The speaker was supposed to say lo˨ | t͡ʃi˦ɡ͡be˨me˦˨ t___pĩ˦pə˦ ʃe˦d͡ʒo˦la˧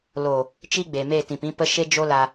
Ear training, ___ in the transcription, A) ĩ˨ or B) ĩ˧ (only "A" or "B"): A